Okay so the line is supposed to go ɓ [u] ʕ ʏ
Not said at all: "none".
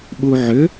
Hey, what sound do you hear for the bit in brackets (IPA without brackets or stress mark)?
u